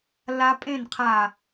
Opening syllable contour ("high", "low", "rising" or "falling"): high